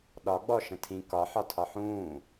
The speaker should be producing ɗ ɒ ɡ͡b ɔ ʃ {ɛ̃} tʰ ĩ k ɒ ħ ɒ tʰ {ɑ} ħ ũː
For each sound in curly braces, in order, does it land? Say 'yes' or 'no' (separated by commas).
no, no